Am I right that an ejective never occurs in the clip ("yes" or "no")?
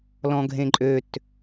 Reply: no